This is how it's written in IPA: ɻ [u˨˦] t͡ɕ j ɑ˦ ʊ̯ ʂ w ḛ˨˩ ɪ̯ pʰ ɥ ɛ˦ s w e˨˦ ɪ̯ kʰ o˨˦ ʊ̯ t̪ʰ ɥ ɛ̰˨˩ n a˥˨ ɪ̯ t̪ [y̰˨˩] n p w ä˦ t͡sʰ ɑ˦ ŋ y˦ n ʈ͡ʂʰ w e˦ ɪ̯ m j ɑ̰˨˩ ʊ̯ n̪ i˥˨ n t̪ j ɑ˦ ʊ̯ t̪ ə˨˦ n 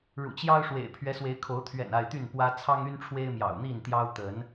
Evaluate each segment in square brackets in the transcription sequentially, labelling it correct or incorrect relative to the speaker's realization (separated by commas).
incorrect, incorrect